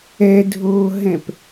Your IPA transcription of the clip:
ɛ dʱ oː ɦ ɛ̃ p

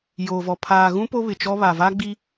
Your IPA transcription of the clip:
j oː˨ v ɔ˨ pʰ aː˨ ɣ ũ˦ p o˦ β ɪ˨ t͡ʃ ɔ˦ β a˨ v a˦ ɡ͡b i˦

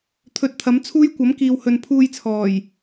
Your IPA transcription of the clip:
t̪ʰ ɵ˨˥ t̚ t̪ʰ ɐ˨˥ m t͡sʰ uː˥ j kʷ ɐ˨˥ m k iː˨ w h ɵ˨ n pʰ uː˧ j t͡sʰ ɔː˨˩ j

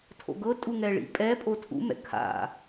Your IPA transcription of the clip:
tʰ o̰ ɡ ɤ tʼ u ŋ ɛ ɭ ḭ pʼ ɛ pʼ o tʰ ṵ m ɛ̰ kʰ a̰

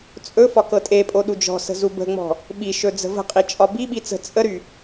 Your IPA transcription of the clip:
t͡sʼ ɵ f ɒ k ɤ tʼ e pʼ o ɗ u d͡ʒ ɔ̤ s ə̤ z u b ə̤ ŋ͡m ɔ̤ | ɓ i ʃ ɵ d͡z ə̤ v ə̤ qʼ i t͡ʃʼ ɒ b i ɓ i t͡s ə̤ t͡sʼ ə ɾ y

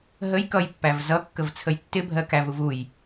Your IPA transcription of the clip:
ɦ ə j k ʌ j pː æ v z ʌ kː ə v t͡sʰ ə j tː ɪ bʱ ɜ k æ v u v u j

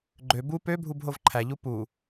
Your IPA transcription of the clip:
ɡ͡ǃ ø b u p ø bʱ u b ɦ o v ǃʰ æ ʎ u p u

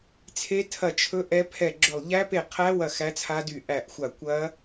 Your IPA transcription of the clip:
t͡sʰ e˦˥ tʰ ɐ˦˨ t͡ʃʰ ɵ˦˥ ʔ ɛ˦˥ pʰ ɛ˦˨ ɡ͡ǁ ɵ˦˨ lˠ ʎ æ˦˥ p e˦˨ qʰ æ˦˥ w ɐ˦˨ x æ˦˥ t͡sʰ a˦˥ d y˦˨ ʔ æ˦˨ ʔ xʷ a˦˨ kʷ ɐ˦˥

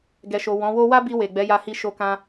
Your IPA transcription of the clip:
ɡ ɛ˨ ʃ o˨ w ɔ̃˨˦ w o˦ w a˦ b i˧ w e˨ ɡ͡b ɛ˨˦ j a˧ h i˧ ʃ o˦ k ã˦

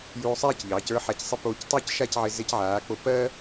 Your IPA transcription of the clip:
j uː˧ sˤ ɛː˥˧ c ʎ ɑː˩˧ c ə˞˥ ħ a˧ c sˤ ɪ˥˧ p oː˧ c tˤ ə˞˥˧ c ʃ a˥˧ c ʕ ɪ˧ z e˧ c ʕ aː˩˧ k͡p o˧ p ɜ˥

